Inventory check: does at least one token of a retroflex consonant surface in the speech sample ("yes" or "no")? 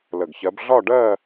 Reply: yes